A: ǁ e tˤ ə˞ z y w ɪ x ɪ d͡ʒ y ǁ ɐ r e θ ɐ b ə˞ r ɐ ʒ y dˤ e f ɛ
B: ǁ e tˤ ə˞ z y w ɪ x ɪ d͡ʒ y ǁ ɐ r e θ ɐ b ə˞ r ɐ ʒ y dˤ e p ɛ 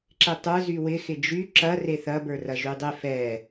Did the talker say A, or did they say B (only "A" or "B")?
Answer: A